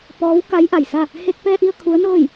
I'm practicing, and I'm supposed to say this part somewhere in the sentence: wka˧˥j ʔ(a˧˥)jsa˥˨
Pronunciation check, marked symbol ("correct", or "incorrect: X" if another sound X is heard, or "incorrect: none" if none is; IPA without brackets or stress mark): incorrect: a˩